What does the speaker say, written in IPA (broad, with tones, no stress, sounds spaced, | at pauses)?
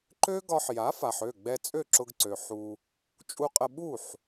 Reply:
ǃ ø˥ ɡ ɒ˧ ħ j a˩˥ f a˩ ħ ø˥˩ ɡ͡b ɛ˧ t͡sʼ ø˥˩ ǁ ʊ˧ ɡ ǀ ø˩ ħ u˧ | t͡ʃʼ u˧ qʼ ə˧ ɓ u˥˩ ħ